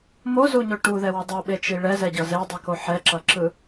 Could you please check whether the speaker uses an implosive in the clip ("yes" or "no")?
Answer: yes